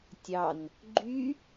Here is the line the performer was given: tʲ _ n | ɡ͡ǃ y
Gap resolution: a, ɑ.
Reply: ɑ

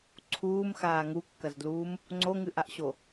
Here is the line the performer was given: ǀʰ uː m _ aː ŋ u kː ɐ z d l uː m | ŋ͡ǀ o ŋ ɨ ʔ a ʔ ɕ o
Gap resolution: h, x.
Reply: x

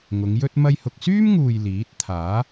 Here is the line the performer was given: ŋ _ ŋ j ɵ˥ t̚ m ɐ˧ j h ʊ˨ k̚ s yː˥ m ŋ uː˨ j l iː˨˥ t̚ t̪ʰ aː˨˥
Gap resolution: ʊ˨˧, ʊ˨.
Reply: ʊ˨˧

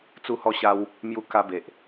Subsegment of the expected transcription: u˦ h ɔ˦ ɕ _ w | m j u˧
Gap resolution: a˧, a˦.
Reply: a˦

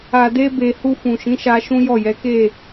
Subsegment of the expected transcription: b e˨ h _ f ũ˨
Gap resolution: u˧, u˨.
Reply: u˧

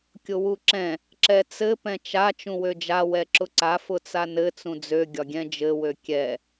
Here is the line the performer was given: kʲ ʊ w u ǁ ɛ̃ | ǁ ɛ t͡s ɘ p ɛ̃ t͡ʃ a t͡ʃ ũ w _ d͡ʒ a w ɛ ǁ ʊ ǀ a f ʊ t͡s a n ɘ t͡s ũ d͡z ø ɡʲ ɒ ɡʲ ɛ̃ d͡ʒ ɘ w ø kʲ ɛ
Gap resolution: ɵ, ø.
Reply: ø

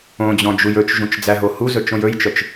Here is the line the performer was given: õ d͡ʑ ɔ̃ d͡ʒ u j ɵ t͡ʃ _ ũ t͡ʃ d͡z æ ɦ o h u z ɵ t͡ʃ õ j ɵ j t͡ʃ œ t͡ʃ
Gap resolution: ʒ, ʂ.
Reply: ʒ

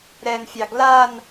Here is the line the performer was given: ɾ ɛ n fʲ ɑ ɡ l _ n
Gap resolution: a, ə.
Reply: a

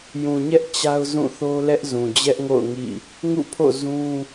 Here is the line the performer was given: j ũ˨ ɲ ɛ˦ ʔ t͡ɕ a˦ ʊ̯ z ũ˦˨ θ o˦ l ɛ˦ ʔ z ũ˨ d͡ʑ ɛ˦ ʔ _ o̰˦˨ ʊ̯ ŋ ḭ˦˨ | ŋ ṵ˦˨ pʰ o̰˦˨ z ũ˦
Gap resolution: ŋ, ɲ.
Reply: ŋ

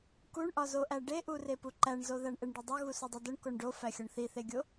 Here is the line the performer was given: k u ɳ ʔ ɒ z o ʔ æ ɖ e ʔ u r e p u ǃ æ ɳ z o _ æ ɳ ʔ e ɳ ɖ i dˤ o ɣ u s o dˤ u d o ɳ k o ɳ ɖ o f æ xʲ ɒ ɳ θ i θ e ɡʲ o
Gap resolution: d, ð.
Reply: ð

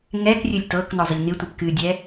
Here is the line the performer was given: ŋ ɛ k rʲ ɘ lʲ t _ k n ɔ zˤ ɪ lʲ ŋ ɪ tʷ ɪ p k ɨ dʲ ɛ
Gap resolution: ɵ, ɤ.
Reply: ɤ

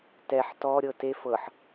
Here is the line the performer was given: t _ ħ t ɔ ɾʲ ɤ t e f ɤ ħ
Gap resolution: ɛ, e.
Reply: ɛ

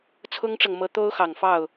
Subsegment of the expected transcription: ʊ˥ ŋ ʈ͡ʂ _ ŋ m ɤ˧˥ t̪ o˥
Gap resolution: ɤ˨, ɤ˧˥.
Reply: ɤ˨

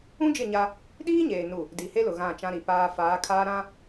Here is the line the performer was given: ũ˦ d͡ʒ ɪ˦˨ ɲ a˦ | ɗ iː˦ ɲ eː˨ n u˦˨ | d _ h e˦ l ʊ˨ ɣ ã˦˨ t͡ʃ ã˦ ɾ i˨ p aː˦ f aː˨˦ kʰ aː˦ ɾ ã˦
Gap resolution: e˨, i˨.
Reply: i˨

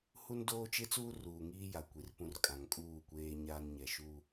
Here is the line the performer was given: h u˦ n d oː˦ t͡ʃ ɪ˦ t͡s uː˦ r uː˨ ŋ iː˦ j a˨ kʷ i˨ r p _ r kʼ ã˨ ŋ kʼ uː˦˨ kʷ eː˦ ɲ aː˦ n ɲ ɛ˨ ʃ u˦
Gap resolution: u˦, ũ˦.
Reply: ũ˦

